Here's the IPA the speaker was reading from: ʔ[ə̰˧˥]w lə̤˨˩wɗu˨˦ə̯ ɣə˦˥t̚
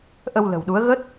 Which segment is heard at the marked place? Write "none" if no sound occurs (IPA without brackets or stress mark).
ə˧